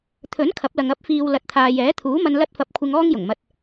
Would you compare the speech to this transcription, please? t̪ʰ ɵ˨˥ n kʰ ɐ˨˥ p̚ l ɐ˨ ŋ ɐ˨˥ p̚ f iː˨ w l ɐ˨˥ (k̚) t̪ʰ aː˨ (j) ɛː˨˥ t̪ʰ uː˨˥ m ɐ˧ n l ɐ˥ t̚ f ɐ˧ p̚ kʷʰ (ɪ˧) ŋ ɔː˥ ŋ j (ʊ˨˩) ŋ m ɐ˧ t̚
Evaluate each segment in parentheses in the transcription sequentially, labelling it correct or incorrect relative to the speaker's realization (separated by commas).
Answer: incorrect, correct, correct, correct